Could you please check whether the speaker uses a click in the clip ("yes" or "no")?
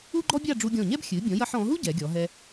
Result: yes